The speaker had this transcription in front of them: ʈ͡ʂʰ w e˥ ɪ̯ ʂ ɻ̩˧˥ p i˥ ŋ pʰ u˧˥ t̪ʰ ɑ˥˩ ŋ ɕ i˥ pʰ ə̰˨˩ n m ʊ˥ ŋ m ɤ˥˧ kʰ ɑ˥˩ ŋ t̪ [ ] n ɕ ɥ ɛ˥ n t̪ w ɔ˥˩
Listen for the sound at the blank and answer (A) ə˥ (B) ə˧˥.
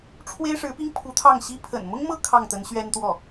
B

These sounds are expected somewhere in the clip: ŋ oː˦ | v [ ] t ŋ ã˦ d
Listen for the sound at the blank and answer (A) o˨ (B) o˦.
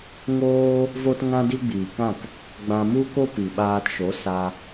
B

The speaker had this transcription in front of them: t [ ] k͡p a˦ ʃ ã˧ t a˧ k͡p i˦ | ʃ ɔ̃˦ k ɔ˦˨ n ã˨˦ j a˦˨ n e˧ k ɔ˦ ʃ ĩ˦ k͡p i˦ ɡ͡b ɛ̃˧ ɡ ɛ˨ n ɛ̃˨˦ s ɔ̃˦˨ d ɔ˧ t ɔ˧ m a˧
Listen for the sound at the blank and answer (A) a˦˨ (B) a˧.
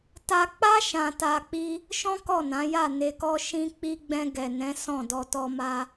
B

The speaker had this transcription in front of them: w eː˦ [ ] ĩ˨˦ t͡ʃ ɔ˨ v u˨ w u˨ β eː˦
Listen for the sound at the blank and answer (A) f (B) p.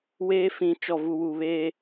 A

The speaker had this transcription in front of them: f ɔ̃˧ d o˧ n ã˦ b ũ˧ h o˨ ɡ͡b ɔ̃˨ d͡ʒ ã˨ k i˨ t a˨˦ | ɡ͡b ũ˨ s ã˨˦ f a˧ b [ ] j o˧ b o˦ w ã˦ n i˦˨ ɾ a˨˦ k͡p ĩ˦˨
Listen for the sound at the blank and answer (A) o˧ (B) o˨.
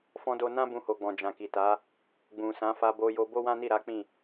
A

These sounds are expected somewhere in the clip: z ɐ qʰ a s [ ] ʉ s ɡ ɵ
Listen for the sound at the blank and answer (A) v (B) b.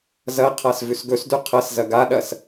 A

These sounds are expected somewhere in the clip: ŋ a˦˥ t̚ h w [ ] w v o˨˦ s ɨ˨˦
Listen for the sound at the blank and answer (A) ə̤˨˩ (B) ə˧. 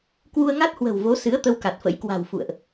A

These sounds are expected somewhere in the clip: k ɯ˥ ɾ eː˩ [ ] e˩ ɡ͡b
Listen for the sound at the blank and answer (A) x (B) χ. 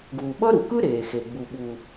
A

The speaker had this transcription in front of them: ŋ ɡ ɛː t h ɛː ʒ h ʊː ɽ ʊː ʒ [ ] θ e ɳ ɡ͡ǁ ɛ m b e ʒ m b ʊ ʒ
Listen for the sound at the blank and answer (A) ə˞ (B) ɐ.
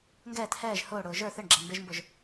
A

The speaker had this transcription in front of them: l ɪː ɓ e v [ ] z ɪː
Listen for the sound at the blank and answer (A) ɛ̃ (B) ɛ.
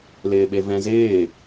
A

